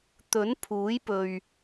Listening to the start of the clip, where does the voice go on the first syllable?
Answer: rising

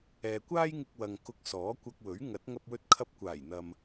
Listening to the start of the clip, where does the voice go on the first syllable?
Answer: low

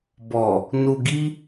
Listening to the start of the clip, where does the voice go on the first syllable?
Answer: low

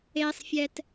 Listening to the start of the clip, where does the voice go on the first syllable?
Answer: low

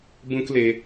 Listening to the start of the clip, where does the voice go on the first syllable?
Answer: high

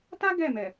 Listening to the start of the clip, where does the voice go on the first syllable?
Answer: high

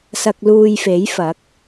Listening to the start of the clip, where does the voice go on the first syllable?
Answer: low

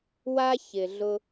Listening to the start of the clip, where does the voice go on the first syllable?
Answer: high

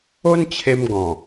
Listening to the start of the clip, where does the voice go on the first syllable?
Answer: high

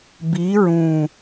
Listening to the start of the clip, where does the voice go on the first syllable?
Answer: rising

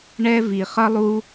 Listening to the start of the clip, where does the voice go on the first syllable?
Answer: high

